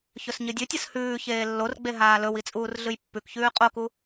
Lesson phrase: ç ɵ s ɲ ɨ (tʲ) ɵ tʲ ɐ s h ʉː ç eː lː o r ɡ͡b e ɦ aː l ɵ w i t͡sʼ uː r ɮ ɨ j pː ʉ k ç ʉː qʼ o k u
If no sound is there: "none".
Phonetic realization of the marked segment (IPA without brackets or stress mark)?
dʲ